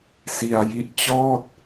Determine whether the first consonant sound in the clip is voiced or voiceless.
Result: voiceless